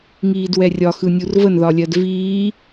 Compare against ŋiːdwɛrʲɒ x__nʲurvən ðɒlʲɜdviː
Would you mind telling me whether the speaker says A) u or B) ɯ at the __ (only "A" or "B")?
B